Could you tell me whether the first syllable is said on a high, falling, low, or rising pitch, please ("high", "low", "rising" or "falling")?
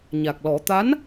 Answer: low